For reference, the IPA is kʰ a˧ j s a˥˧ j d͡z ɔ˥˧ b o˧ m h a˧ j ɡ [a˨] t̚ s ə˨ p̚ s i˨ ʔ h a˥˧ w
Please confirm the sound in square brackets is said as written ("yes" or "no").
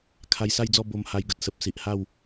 no